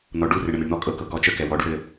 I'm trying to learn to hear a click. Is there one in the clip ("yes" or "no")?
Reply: no